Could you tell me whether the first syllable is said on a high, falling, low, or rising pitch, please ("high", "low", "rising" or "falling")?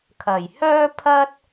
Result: low